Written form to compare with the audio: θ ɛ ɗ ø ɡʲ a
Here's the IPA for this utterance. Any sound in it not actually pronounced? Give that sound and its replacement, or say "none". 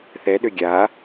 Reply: none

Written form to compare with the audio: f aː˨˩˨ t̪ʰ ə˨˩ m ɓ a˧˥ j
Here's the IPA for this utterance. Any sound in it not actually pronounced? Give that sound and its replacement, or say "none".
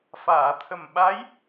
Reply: none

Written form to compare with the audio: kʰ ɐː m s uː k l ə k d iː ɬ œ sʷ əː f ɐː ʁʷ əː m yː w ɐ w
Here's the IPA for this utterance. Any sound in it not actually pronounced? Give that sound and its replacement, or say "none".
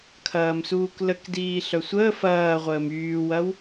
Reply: none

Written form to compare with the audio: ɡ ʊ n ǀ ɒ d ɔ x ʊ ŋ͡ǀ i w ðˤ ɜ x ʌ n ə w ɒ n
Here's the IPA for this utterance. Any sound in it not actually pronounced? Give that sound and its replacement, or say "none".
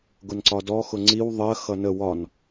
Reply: none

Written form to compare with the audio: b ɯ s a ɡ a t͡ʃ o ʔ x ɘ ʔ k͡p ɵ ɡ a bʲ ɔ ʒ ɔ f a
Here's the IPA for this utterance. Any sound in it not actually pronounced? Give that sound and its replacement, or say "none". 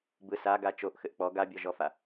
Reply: ɵ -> ɔ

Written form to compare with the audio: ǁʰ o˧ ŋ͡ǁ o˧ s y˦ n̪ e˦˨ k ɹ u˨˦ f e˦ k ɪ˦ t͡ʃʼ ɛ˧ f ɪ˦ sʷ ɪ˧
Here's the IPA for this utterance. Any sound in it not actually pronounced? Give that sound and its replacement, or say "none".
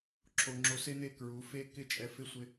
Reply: y˦ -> e˦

